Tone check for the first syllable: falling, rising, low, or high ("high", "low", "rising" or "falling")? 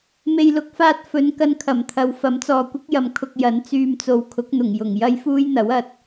low